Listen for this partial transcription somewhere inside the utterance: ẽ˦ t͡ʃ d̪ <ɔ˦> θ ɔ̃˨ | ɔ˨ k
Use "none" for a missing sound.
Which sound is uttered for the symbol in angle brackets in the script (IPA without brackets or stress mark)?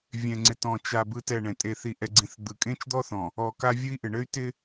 ɔ˦